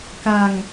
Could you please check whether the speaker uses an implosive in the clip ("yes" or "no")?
no